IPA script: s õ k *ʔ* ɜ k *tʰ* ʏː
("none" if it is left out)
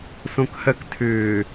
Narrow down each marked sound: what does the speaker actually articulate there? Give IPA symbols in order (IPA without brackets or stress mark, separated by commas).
h, tʰ